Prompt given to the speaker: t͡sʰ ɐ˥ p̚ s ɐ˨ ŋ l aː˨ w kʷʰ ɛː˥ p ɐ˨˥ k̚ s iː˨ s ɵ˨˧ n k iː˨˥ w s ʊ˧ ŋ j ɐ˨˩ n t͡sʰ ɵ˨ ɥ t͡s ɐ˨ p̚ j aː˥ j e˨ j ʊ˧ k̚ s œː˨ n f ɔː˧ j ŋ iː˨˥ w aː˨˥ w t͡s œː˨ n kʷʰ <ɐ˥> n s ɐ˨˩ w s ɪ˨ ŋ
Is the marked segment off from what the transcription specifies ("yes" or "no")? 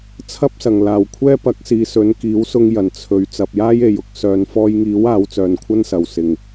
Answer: no